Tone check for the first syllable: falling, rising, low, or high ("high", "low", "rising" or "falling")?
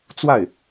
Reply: falling